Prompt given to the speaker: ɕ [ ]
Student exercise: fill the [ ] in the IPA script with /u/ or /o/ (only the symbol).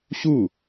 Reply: u